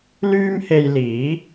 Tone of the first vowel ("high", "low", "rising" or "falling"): high